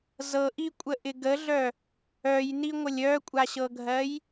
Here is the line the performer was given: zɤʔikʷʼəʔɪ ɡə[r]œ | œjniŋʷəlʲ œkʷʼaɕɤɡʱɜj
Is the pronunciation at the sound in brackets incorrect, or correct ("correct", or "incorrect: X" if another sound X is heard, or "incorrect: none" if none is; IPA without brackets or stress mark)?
incorrect: ɮ